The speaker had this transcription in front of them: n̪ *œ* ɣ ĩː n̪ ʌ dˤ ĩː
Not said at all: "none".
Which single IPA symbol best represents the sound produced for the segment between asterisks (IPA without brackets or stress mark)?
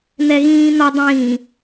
ɛ